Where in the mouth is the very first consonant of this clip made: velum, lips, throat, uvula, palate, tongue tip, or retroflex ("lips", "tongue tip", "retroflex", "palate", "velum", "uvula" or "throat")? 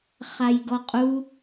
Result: uvula